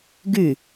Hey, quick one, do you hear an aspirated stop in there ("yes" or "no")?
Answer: no